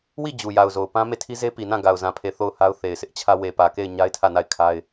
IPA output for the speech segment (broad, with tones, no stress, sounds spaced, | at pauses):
w i˦˨ d͡ʑ u˨ j a˨ ʊ̯ z o˨ ʊ̯ p ã˦ m e˦˨ tʰ i˦ z e˦ p i˨ n ã˦˨ ɡ a˨ ʊ̯ z ã˨ pʰ e˨ θ o˦˨ ʊ̯ h a˦ ʊ̯ θ e˨ ɪ̯ sʰ ɪ˦ ʔ t͡ɕʰ ä˦ w e˨ p ä˨ k e˦˨ ɪ̯ ɲ a˦ ɪ̯ tʰ ä˦˨ n a˦˨ ɪ̯ kʰ a˦ ɪ̯